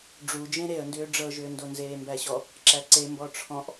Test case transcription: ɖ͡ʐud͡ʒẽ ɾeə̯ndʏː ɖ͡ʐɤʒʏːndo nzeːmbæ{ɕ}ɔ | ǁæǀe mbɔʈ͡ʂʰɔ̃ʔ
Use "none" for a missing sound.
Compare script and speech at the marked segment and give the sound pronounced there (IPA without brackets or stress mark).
ɕ